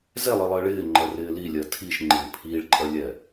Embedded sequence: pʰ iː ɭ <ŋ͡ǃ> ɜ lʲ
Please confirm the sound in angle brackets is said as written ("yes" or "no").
no